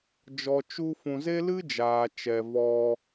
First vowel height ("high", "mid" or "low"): mid